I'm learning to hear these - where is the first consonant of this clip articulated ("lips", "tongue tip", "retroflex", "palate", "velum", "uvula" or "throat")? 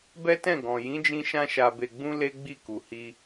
lips